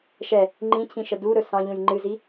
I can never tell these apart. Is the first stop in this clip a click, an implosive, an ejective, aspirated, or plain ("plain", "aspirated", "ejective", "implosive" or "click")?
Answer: click